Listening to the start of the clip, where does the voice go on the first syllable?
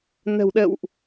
low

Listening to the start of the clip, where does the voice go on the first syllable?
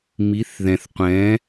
rising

